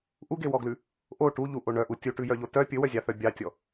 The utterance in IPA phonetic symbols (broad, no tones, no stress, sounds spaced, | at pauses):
ʔ u ɡ e w ɔ ɡ l ʉ | ʔ o ʈ u ʎ u ʔ o ɳ œ ʔ u tʲ u ʈ ʉ j œ ʎ o t œ pʲ ɵ w œ zʲ ɑ θ œ bʲ ɑ tʲ ɔ